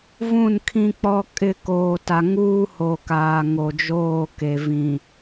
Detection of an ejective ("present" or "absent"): present